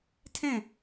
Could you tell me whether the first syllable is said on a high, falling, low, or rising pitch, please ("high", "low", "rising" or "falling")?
falling